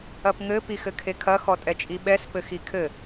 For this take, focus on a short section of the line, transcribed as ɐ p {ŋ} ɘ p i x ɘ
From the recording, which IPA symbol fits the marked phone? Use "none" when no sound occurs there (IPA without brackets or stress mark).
ŋ